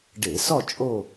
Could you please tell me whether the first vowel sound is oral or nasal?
oral